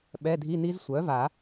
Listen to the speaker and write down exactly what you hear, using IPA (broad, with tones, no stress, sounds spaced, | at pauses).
ɓ ɛ˧˥˧ dʱ i˧˥˧ n i˦˥ z sʷ œ˩˥ v a˨˩˦